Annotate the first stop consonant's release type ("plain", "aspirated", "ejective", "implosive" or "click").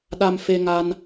implosive